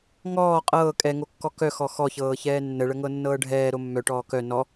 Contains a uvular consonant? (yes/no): yes